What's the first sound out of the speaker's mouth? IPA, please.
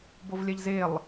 b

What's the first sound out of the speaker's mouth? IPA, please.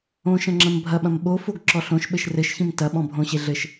õ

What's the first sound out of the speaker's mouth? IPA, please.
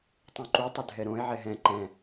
tˤ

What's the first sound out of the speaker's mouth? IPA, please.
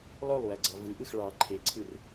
lˠ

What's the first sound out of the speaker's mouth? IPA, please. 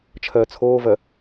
t͡ʃʰ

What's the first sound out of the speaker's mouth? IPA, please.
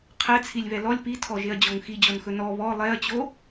qʰ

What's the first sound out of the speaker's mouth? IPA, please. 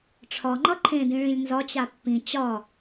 ʈ͡ʂʰ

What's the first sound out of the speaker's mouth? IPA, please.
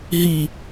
ɦ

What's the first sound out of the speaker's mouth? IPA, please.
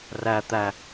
r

